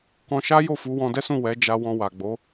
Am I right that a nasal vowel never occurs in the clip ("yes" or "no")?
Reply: no